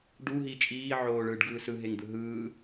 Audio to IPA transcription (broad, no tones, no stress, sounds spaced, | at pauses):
ɖ u ɦ iː t͡ʃʼ iː ʕ oː ɭ ɯː ɖ ɡ ɯː s ɯ ɦ e ŋ d̪ ɯ ɦ ɯː